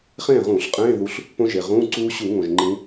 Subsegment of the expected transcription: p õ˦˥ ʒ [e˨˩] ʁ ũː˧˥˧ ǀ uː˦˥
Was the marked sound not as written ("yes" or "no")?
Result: no